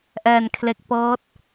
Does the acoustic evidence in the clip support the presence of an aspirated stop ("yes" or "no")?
yes